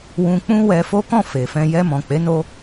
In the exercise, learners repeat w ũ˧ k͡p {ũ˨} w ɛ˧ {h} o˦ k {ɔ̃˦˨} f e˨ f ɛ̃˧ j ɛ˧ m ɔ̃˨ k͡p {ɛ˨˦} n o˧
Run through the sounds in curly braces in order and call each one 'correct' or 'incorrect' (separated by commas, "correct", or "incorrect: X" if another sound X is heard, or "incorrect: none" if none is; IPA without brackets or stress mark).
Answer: incorrect: ũ˦, incorrect: f, correct, incorrect: e˨˦